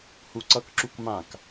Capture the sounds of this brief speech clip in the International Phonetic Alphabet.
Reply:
huǀʌkǁuk mãk

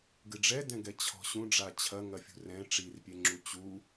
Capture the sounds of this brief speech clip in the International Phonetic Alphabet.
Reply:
ɡɨɖ͡ʐɛdɛ̃ɡɛ t͡ɕʰɔ̤ɕũ ɖ͡ʐat͡ɕʰɐŋɐfʲṳ rɛ̃ ʈ͡ʂirpʲe ŋ͡ǁut͡ɕu

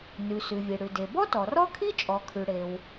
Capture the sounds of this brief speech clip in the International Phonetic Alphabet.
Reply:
nʉ˩ sʉ˩vʲe˩ɽʉ˩ de˩bɔ˥tɔ˩ rɔ˥kʰi˥ t͡ʃʼɔ˩kʰʉ˩ɽe˩w

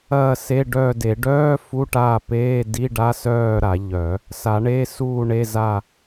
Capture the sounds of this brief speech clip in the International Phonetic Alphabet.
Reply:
ɐː˦˨se˧˥˧ɖœː˦˨de˨˩˦ ɖœː˧˥˧ fu˧˥˧ʈaː˦˨peː˧˥˧ di˧˥˧ɖa˧˥˧sœː˦˨ ɾa˨˩˦ʎœ˨˩˦ | sa˨˩˦ɳe˧˥˧suː˦˨ɳe˧˥˧ za˦˨

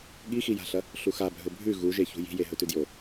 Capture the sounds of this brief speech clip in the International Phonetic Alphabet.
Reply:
ɠixija̤ɬɐ | ɬuxabʱɵ bʱʉ ɣuʒeçṳ ji̤je ɦɵtʉdjo

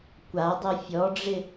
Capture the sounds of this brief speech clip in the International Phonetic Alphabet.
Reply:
kʷadˤi fʲɔɖ͡ʐɪ

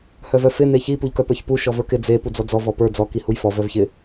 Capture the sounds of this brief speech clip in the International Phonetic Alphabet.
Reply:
hœvœfɪ neçi puʎkœpə˞çpu ʃɔvə˞kɪ d͡ze pud͡zɔd͡zɔ vɔpə˞ d͡zɔ kihujfɔ vœvçɪ

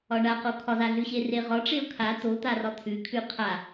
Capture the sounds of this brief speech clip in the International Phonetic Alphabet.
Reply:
ɒɳaqo kʰɒzaɮʉɕe reʁɒʈ͡ʂeʊ̯ kʰa t̪ot̪arɒ t̪ʰʉkʰʉ qʰa

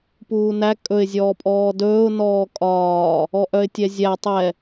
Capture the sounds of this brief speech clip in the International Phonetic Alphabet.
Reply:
puːnæ kʼɵɪ̯ zʲɔːpʼɔːdɵːʊ̯ nɔːkʼɒː | ɔʔœɪ̯tʲɛzʲæ tˤɛ

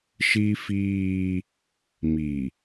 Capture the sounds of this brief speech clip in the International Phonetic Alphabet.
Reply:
ʃi˦fiː˦ | mi˨

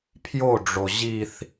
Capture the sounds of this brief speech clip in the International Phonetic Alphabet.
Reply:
pʰjoɖ͡ʐo ʑiθ

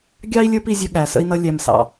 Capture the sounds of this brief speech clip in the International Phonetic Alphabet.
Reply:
ɡʲɑ˦i̯lʲə˞˦p i˧zʲə˧ ɠæ˨sə̰˧i̯nʌ˧ lʲæ˨msɑ̰˨

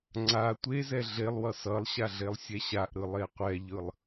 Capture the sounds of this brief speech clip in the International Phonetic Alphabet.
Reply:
ŋ͡ǀa tʷezɛ ɮelˠwʌ sʌlˠɕa ɮelˠsʲɛɕaʔɾɯ lˠeqʷɛʎɯlˠ

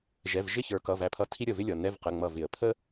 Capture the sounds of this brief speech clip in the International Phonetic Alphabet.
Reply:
ʒɛ˩˧˩vʒɪ˥˩ çə˞˨˩˦kʌ˩˧˩ væ˧˩ pʰʌ˧˥˧tʰi˥ ɾʲə˧˩vɪ˥ lʲʌ˩˧˩ nɛ˧˥˧vqə˩˧˩ ŋ͡mʌ˧˩vɪ˨˩˦ə̯ pʰə˥

